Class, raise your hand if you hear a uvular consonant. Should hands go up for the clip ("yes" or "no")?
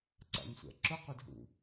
yes